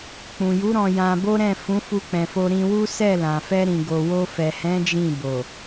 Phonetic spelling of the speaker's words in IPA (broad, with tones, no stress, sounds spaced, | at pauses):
k͡p ũ˨ j u˨˦ ɾ ɔ̃˧ j ã˧ b o˦ ɾ ɛ̃˦˨ f ũ˨˦ f u˧ k͡p ɛ̃˨ f o˧ ɾ ĩ˧ w u˦ s ɛ˦˨ l ã˨ f ɛ˧ ɾ ĩ˨ ɡ o˨ w o˧ f ɛ˨ h ɛ̃˨˦ d͡ʒ ĩ˦˨ b o˨